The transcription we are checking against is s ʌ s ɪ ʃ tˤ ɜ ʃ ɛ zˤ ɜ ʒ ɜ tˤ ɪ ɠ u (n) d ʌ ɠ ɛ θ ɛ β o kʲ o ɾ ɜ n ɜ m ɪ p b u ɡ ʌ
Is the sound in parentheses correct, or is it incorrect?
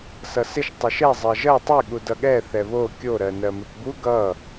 incorrect